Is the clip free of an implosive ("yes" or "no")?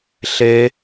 yes